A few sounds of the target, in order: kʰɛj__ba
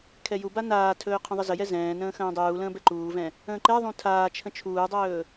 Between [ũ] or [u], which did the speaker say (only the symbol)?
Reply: u